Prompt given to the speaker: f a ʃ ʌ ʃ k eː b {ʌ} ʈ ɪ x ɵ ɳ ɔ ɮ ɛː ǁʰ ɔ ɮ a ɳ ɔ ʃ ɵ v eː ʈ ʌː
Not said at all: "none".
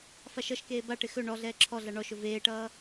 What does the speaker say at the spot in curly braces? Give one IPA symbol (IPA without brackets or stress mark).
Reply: a